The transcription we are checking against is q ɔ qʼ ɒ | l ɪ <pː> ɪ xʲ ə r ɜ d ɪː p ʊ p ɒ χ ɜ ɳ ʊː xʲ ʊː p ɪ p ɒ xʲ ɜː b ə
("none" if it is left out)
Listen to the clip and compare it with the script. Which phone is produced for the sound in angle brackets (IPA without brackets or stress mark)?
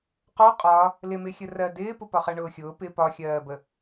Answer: m